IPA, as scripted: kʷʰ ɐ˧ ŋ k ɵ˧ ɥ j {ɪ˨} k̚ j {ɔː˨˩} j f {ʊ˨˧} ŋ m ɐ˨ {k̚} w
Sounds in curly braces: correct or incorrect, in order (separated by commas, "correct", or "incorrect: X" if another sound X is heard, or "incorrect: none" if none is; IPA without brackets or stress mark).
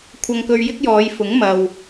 incorrect: ɪ˥, incorrect: ɔː˨˧, incorrect: ʊ˨˥, incorrect: none